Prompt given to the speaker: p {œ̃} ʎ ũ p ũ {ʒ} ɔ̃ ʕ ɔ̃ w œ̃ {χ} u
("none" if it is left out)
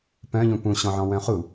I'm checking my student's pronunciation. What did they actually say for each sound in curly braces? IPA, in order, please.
œ̃, ɕ, χ

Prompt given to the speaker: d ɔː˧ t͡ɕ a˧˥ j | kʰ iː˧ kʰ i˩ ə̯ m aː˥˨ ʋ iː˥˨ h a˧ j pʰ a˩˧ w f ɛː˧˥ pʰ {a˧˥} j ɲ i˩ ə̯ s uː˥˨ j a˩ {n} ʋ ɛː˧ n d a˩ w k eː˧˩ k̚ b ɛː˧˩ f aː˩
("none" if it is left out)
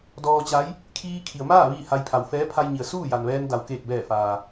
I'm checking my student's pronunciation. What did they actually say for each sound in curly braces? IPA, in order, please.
a˧, n

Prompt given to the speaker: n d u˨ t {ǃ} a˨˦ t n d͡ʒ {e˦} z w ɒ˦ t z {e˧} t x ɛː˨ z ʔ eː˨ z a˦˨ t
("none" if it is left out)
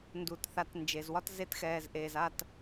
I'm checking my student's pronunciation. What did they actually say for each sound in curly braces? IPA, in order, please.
θ, e˨, e˧

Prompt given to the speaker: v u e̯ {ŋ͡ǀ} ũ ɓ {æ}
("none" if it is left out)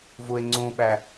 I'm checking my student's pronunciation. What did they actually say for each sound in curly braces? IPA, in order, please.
ŋ͡ǀ, æ

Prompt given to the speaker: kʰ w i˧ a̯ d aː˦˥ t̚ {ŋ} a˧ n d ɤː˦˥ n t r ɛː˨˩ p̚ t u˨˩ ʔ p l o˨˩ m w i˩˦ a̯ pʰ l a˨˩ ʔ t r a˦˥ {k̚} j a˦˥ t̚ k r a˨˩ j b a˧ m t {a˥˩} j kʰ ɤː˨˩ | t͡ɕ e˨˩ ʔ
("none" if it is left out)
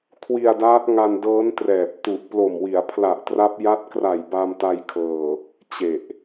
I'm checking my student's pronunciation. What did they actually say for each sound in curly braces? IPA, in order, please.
ŋ, p̚, a˧

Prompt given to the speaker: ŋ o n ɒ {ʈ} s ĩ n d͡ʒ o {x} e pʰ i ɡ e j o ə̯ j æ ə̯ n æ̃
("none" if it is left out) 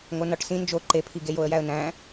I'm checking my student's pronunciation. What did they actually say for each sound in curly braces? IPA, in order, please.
ʈ, ǃ

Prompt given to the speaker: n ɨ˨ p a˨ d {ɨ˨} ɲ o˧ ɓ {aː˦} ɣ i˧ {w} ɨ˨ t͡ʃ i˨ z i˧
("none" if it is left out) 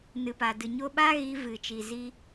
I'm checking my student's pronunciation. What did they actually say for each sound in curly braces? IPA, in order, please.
ɨ˨, aː˦, v

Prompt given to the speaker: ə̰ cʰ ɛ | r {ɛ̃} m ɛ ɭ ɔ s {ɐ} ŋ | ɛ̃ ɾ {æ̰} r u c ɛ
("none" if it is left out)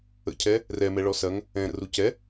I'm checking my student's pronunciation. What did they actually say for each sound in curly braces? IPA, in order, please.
ɛ, ɐ, ə̰

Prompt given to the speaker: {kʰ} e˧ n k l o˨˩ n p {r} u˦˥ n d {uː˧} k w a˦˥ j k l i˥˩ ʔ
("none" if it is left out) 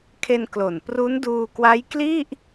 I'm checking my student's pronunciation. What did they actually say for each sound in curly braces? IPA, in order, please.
kʰ, r, uː˧

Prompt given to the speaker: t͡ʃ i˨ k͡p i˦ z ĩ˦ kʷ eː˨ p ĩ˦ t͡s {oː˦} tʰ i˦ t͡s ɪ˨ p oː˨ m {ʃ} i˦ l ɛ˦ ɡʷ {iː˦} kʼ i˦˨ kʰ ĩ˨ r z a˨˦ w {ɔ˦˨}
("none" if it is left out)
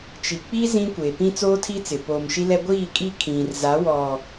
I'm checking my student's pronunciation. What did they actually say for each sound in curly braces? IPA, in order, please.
oː˦, ʃ, iː˦˨, ɔ˨

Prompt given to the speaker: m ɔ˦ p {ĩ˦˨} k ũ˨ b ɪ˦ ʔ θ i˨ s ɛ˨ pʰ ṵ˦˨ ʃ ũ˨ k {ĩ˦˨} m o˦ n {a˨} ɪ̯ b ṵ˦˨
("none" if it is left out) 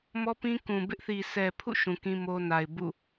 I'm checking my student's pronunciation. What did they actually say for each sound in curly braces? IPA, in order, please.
ĩ˦, ĩ˦, a˨

